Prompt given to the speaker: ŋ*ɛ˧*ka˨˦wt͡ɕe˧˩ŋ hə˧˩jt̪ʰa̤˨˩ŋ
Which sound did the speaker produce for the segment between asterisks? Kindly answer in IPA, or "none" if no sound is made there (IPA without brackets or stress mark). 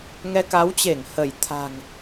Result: ɛ˧